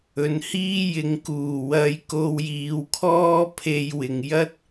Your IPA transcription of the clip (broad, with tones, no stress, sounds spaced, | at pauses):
ɵ˨ n h iː˥ j ɪ˨˧ ŋ k uː˨˩ w ɐ˧ j k o˧ w j iː˨˧ w kʰ ɔː˥ pʰ e˧ j w ɪ˨ ŋ j ɐ˥ t̚